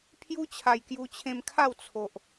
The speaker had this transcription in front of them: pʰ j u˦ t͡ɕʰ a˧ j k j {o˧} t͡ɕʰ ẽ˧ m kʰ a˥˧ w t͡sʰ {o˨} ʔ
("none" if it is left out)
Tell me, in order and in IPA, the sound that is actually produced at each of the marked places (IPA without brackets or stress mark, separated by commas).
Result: u˧, o˨